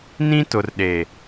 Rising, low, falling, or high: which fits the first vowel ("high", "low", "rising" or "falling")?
high